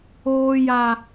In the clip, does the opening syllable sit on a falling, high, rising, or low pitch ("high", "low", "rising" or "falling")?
high